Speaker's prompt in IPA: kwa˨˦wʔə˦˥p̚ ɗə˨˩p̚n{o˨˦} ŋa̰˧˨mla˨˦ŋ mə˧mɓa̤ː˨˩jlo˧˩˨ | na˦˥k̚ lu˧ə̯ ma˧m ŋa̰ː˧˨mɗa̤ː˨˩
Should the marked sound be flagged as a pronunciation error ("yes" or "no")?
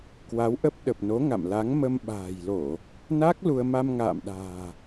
no